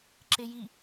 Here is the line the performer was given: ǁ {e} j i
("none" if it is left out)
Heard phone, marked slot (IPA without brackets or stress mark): e